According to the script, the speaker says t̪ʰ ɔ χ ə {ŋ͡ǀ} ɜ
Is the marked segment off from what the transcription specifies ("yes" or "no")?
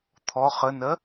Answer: yes